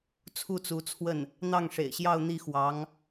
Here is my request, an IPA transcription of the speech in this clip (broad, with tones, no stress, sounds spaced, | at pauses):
t͡sʰ u˥˩ t͡s u˧˥ t͡sʰ w ə˥˩ n | n̪ ɑ˥˩ ŋ ʂ ḛ˨˩ ɪ̯ ɕ j ɑ˥˧ ʊ̯ n̪ i˥˩ x w ɑ˧˥ ŋ